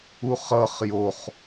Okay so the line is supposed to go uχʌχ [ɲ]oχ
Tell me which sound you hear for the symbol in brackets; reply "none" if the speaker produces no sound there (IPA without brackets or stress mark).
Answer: j